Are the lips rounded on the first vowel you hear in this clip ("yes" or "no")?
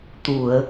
yes